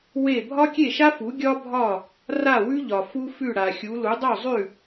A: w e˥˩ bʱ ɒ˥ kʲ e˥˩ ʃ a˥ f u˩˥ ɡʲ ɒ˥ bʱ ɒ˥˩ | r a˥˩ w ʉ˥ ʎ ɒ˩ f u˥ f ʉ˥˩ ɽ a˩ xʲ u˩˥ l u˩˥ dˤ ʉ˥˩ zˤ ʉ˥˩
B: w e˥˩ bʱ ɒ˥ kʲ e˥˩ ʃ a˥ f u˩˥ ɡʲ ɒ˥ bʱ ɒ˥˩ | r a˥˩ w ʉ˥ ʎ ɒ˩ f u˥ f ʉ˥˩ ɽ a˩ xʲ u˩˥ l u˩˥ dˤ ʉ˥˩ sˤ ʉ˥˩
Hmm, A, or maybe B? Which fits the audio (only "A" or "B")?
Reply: A